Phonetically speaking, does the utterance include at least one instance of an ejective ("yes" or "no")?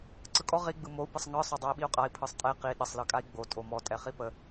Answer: yes